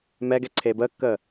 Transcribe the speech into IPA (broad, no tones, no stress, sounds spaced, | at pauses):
m ɛ ɡ ɛ ǀʰ eː b əː kː əː